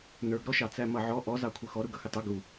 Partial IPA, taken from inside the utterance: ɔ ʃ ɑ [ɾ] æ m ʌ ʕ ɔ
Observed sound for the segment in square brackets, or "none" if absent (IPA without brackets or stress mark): t͡s